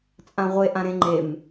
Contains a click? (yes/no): yes